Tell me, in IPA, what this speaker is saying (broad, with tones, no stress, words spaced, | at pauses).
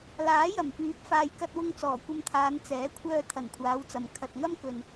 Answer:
laː˨˥jɐ˨˩mpyː˨˥p̚ faː˨jkɐ˧t̚wʊ˧ŋ t͡sɔː˨˩kʷɐ˧mt̪ʰaː˨˧n t͡sɛː˨˥kʷʰœː˧ t̪ʰɐ˨˩nkʷʰaː˨˧wt͡sɐ˨m kʰɐ˨t̚ŋɐ˥mkɵ˨n